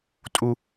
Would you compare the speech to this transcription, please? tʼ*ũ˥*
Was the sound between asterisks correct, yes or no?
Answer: no